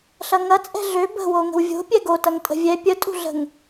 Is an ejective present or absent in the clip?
present